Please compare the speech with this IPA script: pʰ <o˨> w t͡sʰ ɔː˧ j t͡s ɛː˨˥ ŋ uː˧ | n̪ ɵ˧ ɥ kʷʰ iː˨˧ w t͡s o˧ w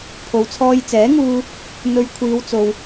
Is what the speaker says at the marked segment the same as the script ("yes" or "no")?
yes